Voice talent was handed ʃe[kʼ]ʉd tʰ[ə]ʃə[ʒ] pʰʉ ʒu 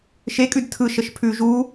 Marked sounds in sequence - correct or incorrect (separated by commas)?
correct, incorrect, incorrect